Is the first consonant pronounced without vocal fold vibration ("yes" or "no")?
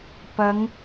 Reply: yes